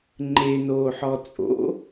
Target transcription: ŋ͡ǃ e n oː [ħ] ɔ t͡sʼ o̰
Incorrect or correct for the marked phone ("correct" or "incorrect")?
correct